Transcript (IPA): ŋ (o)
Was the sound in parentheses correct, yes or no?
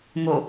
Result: yes